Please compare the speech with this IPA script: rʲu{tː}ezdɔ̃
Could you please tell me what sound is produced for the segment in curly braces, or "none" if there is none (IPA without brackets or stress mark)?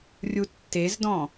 tː